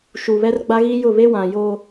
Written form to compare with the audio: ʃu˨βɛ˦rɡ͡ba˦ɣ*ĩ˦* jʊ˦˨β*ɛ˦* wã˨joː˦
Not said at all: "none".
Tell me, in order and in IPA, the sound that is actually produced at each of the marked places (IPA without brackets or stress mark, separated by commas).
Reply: i˦, e˦